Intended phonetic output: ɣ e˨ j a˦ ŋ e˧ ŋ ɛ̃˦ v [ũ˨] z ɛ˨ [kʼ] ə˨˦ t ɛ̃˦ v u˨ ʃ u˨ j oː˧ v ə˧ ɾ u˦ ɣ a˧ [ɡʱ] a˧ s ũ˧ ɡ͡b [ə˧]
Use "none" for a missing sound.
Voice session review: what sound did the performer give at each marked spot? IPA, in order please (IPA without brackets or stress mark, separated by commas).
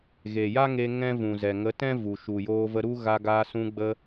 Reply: ũ˨, ŋ, ɡ, ə˧